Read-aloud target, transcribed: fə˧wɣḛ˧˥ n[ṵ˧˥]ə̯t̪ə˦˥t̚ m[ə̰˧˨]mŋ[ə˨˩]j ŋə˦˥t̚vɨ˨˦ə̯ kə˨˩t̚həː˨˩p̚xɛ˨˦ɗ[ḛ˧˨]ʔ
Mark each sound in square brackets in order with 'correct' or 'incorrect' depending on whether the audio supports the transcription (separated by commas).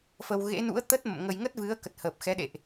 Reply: correct, correct, incorrect, correct